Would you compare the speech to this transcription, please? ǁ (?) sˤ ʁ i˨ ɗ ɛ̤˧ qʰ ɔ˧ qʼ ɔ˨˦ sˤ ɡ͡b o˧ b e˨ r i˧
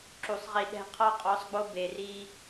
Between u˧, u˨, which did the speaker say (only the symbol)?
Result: u˨